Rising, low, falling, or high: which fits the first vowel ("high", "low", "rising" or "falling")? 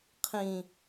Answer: low